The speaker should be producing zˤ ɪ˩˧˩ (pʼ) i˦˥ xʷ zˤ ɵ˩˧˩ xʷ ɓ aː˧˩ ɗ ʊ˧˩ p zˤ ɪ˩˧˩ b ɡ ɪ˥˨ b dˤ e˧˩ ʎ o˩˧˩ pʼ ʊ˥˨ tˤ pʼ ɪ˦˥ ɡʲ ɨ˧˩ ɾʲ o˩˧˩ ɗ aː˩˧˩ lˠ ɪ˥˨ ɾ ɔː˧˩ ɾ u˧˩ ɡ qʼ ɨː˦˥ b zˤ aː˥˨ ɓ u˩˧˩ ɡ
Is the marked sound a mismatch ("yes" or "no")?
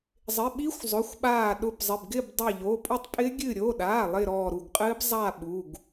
yes